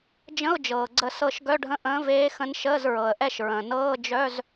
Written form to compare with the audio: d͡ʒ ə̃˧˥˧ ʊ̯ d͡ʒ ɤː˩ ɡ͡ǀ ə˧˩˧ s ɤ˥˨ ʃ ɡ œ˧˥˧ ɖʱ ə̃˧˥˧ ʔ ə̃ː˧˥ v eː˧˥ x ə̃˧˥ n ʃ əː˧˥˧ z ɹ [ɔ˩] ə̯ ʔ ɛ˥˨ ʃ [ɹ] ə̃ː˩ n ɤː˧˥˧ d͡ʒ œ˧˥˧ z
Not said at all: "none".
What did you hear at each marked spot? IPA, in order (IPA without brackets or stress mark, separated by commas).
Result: ɤ˩, ɹ